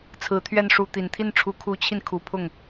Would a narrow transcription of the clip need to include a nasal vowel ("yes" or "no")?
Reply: no